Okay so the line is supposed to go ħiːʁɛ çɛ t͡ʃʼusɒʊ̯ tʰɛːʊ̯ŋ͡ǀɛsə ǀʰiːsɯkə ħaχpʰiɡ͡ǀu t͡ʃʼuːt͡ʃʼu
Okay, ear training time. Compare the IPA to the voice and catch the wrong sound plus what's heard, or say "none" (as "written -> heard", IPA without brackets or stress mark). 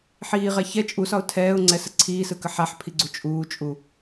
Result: χ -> ħ